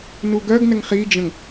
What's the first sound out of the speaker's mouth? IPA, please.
n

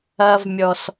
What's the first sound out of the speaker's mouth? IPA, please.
ɐ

